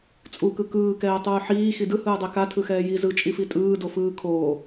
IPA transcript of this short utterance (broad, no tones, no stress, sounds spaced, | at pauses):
t͡sʼ u k ɯ k ɯː k ɛː tˤ uː ħ iː x i d ɯ h ɯː dˤ ɛ k a tʰ ɯ x ɛː j i z ɯ t͡ʃʼ i f i tʼ ɯː d o f ɯː kʰ oː